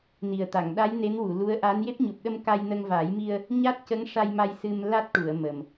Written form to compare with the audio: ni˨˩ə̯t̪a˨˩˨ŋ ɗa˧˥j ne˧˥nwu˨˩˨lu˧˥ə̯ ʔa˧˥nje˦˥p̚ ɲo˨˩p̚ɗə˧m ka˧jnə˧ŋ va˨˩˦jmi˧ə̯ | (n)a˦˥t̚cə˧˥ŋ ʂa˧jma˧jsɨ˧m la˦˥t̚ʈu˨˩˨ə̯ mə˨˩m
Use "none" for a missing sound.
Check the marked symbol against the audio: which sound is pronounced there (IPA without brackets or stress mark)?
ɲ